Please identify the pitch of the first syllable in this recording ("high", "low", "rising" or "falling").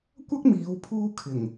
high